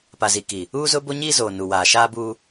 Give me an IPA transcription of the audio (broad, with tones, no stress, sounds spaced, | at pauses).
p a˨ z i˨ k iː˨ | uː˦ z ʊ˦ b o˦ ɲ iː˦ z oː˨ n u˨ w aː˨ ʃ aː˦ b uː˦